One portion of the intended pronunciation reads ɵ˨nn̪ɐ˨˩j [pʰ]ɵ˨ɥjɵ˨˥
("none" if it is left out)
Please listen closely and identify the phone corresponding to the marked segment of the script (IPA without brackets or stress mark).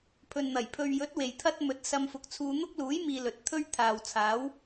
pʰ